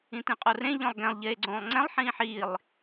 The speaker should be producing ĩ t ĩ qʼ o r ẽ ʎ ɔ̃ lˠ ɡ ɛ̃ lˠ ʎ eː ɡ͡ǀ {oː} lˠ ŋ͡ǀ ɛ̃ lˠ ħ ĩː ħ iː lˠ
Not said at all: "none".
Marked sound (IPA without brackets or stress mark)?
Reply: õː